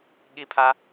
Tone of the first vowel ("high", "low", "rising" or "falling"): high